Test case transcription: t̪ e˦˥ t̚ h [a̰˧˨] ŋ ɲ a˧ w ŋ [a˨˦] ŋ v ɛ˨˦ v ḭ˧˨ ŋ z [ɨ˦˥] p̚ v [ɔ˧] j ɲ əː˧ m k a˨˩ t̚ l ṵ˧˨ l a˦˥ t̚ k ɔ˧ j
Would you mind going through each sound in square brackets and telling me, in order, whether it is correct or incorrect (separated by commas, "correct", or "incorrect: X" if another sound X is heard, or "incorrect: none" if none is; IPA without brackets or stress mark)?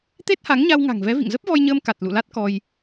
incorrect: a˨˦, incorrect: a̤˨˩, incorrect: ə˦˥, correct